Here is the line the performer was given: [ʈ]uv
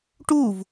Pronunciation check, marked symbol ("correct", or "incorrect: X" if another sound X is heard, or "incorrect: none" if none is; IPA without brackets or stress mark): correct